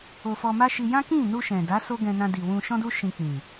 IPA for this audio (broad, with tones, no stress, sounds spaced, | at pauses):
o˨ f ɔ˧ m a˦ ʃ i˧ j ã˦ k ĩ˦˨ n u˧ ʃ ɛ̃˨ d a˨˦ s o˦ ɡ ɛ̃˧ n ã˧ d i˨ w ũ˧ ʃ ɔ̃˦ d u˦ ʃ ĩ˧ k͡p ĩ˨